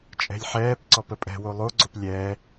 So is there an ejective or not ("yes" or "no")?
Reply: yes